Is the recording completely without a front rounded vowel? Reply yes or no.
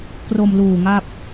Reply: yes